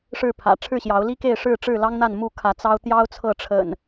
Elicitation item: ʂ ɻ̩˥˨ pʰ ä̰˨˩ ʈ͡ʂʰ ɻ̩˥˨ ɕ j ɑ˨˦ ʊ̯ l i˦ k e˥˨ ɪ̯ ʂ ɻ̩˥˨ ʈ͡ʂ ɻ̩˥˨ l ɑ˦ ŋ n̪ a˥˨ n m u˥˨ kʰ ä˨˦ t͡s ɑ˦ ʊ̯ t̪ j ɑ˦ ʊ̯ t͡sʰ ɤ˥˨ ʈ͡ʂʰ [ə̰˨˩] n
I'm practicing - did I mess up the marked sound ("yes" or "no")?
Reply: no